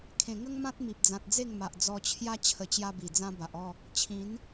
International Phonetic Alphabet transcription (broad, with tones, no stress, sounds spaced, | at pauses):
kʰ ẽ˨˩ ŋ ə˦ ŋ m ã˦ t̚ m i˨ p̚ d͡z ã˨ t̚ d͡z e˥˧ ŋ m a˨ ʔ d͡z ɔ˧ t͡ɕʰ j a˦ t͡ɕʰ ə˧ t͡ɕ j a˦ b i˨˩ d͡z ã˦ b a˨ ʔ ɔ˥˧ | t͡ɕʰ ĩ˨˦ n